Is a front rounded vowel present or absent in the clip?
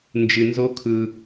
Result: absent